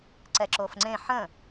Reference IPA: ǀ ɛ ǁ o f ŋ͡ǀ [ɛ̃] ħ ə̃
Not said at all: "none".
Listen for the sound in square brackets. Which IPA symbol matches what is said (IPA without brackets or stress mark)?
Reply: ẽ